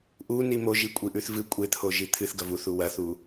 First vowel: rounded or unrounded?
rounded